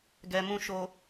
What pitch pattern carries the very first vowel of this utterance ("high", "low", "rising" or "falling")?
low